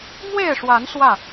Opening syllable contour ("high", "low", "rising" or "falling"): falling